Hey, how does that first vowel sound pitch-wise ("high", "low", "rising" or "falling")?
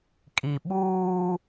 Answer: low